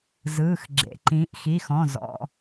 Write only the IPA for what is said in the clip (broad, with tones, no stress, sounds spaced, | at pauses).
z ɯː˩˧˩ x ɡ͡ǁ ḛ˩˧˩ ǃ ĩː˩˧ ʔ x i˩˧˩ x ɔ̃˩˧˩ z ɔ̰˩˧˩